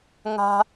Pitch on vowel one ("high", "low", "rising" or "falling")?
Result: low